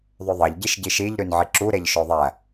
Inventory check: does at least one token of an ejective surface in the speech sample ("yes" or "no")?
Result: no